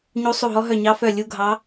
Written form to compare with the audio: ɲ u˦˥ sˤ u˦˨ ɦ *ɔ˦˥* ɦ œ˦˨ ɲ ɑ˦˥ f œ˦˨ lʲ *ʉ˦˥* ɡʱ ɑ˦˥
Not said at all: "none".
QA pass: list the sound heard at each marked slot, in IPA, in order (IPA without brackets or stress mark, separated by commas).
ɔ˦˥, u˦˥